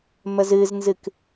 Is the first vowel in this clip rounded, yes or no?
no